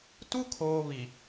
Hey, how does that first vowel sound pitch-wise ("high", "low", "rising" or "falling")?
high